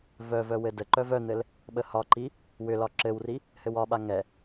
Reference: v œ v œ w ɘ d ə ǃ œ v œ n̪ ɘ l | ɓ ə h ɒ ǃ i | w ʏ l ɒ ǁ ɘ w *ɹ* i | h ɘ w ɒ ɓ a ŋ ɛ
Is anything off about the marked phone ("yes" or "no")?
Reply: yes